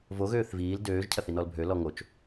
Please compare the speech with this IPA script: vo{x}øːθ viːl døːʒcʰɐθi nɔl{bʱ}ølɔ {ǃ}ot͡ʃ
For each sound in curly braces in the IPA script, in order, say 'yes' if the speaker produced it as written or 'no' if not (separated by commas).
no, yes, no